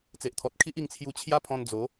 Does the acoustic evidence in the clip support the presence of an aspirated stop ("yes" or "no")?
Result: yes